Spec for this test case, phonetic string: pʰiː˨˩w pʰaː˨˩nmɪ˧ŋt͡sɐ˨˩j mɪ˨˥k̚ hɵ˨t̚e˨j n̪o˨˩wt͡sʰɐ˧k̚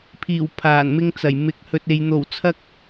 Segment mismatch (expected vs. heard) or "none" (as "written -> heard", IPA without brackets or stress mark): none